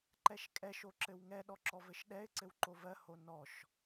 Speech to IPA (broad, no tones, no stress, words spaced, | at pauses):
ǃɛʃkʼɛʃ oǁɘwŋɛ ɗɔǁɔvɘʃɗɛɪ̯ ǀɘwǃovɜ honɔʃ